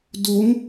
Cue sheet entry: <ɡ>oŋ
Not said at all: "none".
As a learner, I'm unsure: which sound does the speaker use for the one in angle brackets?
d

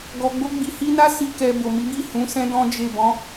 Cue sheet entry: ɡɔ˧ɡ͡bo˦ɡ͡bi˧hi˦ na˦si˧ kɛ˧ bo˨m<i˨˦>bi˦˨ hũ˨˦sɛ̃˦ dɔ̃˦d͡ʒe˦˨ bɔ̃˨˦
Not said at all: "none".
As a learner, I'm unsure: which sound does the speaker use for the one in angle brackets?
i˨˦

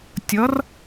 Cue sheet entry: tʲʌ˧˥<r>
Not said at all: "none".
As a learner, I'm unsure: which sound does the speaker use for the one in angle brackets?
r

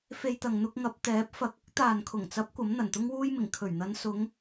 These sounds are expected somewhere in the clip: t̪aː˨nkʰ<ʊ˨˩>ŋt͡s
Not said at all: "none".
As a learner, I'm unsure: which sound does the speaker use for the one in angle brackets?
ʊ˨˩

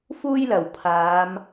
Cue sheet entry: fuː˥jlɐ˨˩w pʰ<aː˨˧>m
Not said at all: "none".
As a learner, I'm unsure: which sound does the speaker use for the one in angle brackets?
aː˨˧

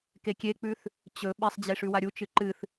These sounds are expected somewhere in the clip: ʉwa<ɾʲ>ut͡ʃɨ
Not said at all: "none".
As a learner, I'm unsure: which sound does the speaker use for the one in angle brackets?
ɾʲ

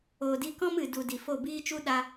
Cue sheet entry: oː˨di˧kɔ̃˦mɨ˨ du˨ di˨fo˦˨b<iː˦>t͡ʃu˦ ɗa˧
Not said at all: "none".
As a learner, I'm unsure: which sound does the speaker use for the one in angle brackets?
iː˦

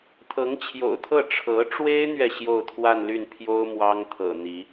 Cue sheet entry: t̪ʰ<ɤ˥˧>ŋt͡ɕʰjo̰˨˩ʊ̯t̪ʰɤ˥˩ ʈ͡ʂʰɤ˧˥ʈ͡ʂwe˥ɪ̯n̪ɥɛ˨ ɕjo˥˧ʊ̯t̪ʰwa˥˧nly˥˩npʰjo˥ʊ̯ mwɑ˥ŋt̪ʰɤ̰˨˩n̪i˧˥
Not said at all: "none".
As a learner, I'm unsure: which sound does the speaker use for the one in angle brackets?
ɤ˧˥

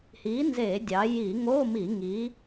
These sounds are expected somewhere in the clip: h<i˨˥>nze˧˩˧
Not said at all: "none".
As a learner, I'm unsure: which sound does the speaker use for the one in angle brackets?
i˨˥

